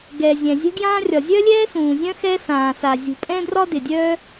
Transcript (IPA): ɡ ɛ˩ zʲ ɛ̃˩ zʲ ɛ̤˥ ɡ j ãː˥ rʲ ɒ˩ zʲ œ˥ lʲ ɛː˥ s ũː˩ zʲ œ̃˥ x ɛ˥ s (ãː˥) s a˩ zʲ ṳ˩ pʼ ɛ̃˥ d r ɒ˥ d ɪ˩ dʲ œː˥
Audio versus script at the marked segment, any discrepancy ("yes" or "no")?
yes